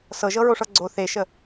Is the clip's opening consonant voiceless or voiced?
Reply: voiceless